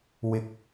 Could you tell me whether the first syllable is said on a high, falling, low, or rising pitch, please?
low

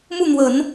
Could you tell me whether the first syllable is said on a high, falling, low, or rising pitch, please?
falling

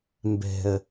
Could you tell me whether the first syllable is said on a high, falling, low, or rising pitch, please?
low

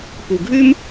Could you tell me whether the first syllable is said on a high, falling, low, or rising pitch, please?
low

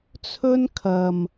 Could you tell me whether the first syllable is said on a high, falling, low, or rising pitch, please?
high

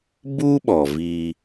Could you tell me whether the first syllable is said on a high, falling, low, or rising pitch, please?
high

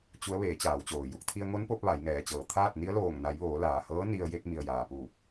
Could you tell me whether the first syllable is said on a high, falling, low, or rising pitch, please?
rising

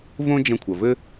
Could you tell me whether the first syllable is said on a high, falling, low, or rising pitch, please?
high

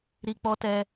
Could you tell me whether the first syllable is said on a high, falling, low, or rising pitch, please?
low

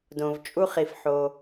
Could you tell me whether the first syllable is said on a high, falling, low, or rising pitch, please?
low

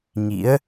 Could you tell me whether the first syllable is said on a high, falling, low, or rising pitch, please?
rising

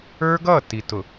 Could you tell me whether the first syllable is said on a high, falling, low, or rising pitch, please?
high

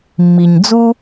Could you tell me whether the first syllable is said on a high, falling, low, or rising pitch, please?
low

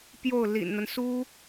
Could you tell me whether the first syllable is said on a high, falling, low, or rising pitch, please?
falling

